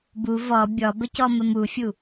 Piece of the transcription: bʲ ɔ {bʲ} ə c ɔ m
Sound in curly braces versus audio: incorrect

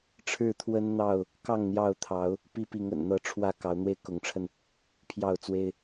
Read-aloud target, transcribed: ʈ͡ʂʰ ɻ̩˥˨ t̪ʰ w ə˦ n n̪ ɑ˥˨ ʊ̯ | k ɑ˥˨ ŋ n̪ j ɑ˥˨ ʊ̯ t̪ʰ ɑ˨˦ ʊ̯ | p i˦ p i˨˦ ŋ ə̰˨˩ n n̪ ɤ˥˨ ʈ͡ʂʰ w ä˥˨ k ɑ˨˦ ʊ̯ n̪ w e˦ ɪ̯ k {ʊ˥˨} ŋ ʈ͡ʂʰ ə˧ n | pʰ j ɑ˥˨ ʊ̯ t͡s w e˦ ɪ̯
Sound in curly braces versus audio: incorrect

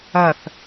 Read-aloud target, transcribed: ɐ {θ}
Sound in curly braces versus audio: correct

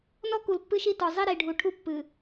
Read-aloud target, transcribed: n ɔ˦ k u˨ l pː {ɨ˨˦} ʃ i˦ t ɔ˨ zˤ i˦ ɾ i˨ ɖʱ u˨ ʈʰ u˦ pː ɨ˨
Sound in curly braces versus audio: incorrect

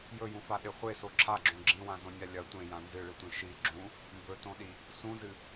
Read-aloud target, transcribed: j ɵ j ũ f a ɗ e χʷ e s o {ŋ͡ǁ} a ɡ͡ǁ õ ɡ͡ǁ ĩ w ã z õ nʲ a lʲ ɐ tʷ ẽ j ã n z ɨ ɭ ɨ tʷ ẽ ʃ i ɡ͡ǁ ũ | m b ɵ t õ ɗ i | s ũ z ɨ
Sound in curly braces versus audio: incorrect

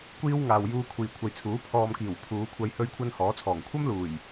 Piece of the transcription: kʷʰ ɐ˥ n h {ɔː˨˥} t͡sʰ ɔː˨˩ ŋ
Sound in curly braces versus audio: correct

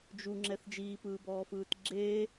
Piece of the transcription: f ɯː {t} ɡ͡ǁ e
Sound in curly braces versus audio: correct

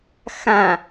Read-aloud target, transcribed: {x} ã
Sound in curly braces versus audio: correct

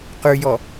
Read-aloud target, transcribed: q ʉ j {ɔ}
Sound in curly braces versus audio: correct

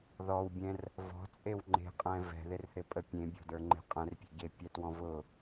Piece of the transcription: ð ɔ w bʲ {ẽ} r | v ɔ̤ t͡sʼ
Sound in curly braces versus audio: incorrect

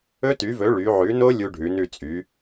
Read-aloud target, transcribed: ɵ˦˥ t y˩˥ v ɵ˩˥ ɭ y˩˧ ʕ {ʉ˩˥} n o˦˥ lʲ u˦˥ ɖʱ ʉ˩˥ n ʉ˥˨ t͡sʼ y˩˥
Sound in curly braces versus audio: correct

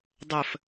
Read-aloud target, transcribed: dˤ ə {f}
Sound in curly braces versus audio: correct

